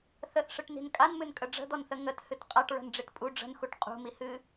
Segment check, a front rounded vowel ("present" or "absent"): absent